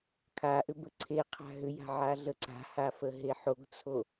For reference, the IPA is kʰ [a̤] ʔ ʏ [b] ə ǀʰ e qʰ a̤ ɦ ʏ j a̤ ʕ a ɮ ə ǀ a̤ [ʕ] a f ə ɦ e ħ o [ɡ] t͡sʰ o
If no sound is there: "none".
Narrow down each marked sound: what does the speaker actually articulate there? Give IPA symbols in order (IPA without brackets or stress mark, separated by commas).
a, b, h, ɡ